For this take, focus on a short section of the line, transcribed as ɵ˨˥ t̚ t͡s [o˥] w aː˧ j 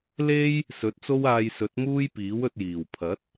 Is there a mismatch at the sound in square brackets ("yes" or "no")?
no